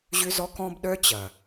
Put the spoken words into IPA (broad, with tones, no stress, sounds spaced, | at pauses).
ʑ ʏ˦ z ɔ˦ k ɔ̃˦ b ɗ œ˦ t͡ɕ ɐ˨